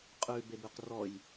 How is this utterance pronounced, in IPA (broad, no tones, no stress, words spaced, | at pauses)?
qʼʉbebʉq rɔj